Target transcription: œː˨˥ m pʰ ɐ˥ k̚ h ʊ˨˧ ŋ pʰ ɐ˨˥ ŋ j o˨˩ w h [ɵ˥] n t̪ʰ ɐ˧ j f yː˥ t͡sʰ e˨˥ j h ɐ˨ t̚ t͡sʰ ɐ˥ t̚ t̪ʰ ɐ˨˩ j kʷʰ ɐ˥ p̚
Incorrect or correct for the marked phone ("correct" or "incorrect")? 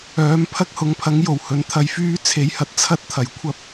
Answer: incorrect